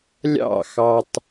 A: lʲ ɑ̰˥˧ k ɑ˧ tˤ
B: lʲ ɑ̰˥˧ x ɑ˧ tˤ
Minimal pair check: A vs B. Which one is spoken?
B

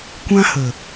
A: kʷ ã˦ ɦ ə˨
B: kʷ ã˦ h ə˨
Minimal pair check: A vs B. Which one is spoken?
B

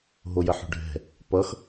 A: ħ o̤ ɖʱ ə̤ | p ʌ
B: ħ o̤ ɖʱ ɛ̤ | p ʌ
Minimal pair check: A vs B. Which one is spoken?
B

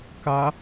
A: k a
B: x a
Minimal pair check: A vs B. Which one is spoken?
A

